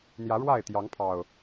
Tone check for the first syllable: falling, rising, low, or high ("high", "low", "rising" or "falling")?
rising